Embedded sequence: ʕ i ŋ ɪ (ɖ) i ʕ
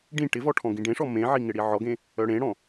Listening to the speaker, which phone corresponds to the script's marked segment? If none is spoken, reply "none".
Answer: ɽ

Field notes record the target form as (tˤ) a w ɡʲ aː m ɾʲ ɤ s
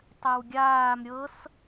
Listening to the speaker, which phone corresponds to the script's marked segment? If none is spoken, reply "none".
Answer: tˤ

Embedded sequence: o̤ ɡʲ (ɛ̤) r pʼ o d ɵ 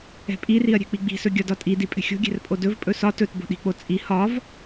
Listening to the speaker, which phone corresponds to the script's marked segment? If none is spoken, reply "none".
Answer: ɛ̤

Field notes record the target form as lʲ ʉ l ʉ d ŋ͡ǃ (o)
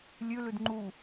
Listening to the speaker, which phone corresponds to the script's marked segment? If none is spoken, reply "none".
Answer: u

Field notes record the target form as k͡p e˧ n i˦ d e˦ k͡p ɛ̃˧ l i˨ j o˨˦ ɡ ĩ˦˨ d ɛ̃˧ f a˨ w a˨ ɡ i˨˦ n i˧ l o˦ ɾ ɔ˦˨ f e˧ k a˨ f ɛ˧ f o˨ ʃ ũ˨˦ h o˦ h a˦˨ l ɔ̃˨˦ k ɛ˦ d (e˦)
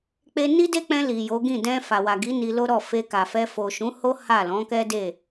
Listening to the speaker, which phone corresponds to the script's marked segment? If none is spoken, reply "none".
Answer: e˦˨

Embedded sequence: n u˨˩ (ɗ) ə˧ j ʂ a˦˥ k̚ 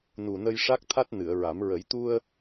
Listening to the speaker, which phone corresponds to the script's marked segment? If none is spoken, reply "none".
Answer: n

